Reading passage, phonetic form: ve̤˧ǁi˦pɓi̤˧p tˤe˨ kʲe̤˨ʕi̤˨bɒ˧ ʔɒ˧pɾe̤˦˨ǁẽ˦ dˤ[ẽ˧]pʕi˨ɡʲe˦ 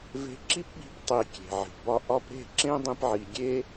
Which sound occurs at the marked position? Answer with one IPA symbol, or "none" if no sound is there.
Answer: ĩ˧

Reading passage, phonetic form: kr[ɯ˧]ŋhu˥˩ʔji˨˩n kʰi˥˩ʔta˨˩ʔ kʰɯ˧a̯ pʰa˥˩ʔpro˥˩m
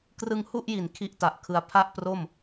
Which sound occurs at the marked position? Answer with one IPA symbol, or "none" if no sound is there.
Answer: ɯ˧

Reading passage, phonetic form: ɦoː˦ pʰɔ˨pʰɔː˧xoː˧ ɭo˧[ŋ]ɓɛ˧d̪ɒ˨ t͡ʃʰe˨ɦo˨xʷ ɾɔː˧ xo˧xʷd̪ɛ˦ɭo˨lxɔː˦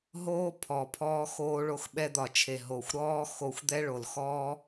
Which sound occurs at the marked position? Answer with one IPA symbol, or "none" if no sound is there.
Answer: x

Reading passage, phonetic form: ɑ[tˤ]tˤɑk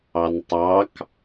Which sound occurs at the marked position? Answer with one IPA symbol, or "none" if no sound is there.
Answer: n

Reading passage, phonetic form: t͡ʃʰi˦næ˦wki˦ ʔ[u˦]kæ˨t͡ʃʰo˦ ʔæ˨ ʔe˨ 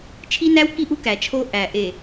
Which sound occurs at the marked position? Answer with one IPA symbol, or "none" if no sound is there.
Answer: u˦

